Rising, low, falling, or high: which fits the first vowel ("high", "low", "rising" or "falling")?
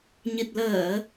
low